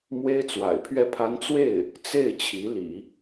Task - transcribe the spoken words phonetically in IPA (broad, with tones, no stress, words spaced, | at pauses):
mwe˥ɪ̯t͡swa̰˨˩ɪ̯pʰɥɛ˥˩pʰa˥n t͡swe˥˩ɪ̯ | t͡se˥˩ɪ̯ t͡ɕʰi˧˥lḭ˨˩˦